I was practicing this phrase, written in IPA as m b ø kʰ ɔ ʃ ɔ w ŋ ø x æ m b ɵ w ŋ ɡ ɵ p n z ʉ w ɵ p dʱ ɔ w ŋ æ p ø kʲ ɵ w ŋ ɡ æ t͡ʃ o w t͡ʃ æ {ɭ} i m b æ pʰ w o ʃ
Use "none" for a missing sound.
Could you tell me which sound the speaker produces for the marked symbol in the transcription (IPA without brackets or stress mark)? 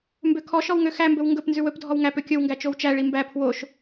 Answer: ɭ